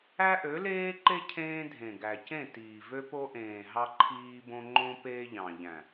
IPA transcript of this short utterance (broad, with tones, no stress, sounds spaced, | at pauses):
æ˦ ʔ ø˨˦ l eː˦ ǃ e˦ cʰ ẽː˦ dʱ ẽ˨ ɡ æ˨ c ẽ˦˨ t iː˨ v ø˦ p o˦ ʔ ẽː˨ ɦ ɑ˦ ǃʰ iː˦ b õ˦ ŋ͡ǃ õ˦ p eː˦ ʎ ɑ̃˨ ʎ æ̃˨